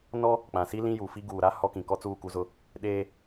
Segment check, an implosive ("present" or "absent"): present